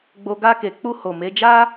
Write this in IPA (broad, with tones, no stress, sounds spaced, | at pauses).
ɡ͡b o˧ ɡ a˧ k e˨ k͡p u˧ h o˨ m e˨˦ d͡ʒ a˦